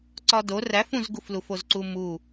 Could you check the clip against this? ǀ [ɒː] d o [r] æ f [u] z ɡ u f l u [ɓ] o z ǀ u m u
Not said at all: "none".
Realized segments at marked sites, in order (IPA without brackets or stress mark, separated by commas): ɒ, r, ũ, f